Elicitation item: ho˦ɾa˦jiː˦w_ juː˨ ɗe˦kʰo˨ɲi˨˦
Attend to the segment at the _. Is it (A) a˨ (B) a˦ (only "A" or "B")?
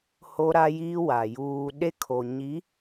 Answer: A